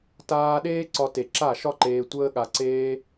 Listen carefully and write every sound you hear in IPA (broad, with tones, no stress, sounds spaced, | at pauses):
t aː˦ ɗ eː˦ ǀ ɒ˧ t e˨ ǁ a˦˨ ʃ ɒ˦ ǃ eː˧ tʷ əː˦ ɠ a˧ ǀ eː˦